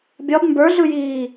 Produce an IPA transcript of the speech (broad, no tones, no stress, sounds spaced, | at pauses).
bʲ ɒ b m b ə˞ ɮ ɯ j iː